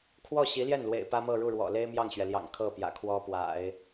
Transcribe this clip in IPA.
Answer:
kʰ w ɔ˥˩ ɕ i˧˥ l j ɛ˥˩ n l w ḛ˨˩ ɪ̯ p ä˥ m ɤ˥˧ ɻ u˥˩ ɻ w ɔ̰˨˩ l e˥ ɪ̯ m j ɑ˥˩ ŋ ɕ ɥ ɛ˩ l j ɑ̰˨˩ ŋ kʰ ɤ˥˩ p j ä̰˨˩ kʰ w ɔ˥ p w a̰˨˩˦ ɪ̯

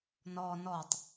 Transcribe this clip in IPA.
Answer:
n ɔ n ɔ tˤ

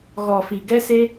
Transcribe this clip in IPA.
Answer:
ɣ ɔ˨ f i˨ ɡ ɛ˦ s e˦

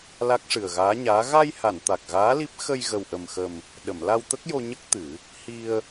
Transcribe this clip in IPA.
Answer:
l a˦˥ k̚ ʂ ɨ˨˩ ə̯ ɣ aː˧˥ ɲ aː˧˥ ɣ a˧ j h a˨˩˨ n t̪ a˨˩ k̚ ɣ aː˧˥ l i˦˥ p̚ x ə˧ j ɣ ə˨˩ w ʔ ə˨˩ m x ə˨˩ m | ɗ ə˨˩˨ m l a˧ w t̪ ə˦˥ k̚ j o˧ ɲ ə˦˥ k̚ t̪ ɨ˨˩˦ | h i˧ ə̯

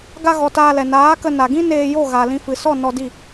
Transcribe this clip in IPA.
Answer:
ɡ a˧ ɣ ɔ˨ t aː˧ l ɛ˨ n aː˨˦ k ə˧ n a˨ ɡ ĩ˦ n eː˧ j o˦˨ ɣ a˨ l ĩ˧ f ɨ˨ s ɔ˦˨ n ɔ˧ d i˦˨

